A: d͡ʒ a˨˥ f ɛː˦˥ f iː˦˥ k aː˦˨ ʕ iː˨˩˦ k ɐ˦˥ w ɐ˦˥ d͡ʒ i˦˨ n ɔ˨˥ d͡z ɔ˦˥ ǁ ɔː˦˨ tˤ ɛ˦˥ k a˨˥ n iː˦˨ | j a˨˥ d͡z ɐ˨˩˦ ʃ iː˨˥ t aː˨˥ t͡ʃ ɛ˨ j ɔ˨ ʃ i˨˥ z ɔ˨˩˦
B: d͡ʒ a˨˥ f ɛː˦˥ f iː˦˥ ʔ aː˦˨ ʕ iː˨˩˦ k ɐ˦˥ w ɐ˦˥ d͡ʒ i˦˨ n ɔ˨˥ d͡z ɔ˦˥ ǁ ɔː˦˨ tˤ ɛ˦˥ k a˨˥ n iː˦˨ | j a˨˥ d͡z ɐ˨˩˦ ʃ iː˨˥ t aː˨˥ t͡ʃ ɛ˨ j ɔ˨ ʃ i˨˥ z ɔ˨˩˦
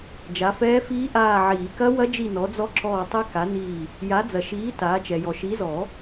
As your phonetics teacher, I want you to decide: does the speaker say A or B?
B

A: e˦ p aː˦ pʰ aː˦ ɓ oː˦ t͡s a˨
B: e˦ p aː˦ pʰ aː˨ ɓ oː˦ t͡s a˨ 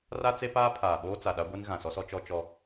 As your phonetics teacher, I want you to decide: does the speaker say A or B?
B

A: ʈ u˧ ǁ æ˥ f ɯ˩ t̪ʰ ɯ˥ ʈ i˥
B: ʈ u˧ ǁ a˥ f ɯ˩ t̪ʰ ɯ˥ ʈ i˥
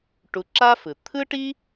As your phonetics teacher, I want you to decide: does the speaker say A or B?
B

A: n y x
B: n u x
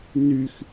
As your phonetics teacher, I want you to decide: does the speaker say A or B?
A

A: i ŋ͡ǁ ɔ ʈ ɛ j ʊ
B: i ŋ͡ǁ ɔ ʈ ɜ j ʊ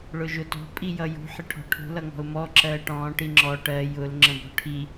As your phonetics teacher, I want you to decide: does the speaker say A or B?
B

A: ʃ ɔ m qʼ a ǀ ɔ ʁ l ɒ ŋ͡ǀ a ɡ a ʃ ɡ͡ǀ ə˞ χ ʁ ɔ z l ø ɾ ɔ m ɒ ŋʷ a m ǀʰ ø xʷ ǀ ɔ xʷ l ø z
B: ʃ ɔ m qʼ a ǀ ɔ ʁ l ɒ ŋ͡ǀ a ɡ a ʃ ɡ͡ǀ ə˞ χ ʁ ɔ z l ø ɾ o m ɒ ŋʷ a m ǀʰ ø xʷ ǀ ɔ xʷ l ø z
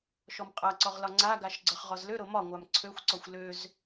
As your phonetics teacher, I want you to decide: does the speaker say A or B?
B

